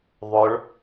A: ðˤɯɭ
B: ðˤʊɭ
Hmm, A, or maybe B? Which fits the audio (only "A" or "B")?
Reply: B